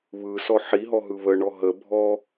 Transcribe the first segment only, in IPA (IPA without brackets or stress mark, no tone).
β